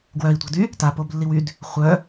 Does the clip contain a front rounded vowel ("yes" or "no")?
yes